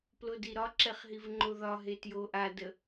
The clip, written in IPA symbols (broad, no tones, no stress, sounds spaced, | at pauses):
p l o d i ɾ ɒ ǁ ɛ χ ɦ i v ŋ͡ǃ o ð ɒ ɦ e t j o ʔ a d ə